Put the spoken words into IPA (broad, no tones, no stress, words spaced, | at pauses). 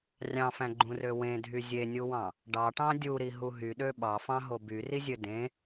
rʲɑ̃fæ̃ɡ͡ǃũrø wẽdʱy zʲenʲuwɑ̃ | ɖɑʈɑ̃ dʲuɾiɦu ɦyɗø ɓɑfɑ̃ɦo byrizʲø dẽ